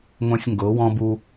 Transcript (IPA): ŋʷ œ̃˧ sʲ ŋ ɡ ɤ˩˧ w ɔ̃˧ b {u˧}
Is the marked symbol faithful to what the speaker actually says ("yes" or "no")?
yes